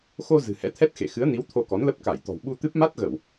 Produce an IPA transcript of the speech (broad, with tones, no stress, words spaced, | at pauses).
xo˧ zɨ̤˨˩hɛ̰˧˥t̪ʰɛ˦˥t̚xḛ˧˨ xɨ˨˦ə̯ni˨˦w t̪ʰo˧kɔ˨˦nlə˦˥p̚ ka˧˩jt̪ɔ̤˨˩w ɓu˧t̪ɨ˦˥p̚ ma˦˥t̚ɣə˧˩˨w